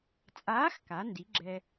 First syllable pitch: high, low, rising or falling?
rising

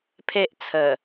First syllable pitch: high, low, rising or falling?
high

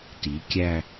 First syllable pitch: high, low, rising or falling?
rising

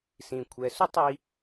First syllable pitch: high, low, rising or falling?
low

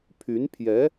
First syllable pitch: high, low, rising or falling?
rising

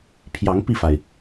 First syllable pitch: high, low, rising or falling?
rising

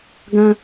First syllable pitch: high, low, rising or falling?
high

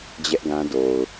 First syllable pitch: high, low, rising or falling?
high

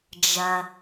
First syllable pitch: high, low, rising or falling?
low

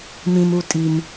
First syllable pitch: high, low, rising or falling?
low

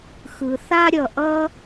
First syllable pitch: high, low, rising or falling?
low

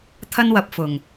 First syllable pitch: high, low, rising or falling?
high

